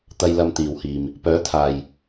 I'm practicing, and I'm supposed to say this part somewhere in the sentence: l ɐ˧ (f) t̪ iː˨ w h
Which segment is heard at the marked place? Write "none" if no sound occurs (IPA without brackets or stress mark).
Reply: m